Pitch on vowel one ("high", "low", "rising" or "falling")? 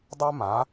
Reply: high